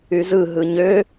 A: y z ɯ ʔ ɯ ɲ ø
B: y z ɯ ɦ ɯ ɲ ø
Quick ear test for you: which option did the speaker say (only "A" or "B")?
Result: B